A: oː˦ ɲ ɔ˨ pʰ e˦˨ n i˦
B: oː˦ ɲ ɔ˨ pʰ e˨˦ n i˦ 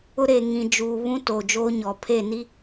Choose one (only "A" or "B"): A